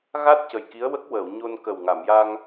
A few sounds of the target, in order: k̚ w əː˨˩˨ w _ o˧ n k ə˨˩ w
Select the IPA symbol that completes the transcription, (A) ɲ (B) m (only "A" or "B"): A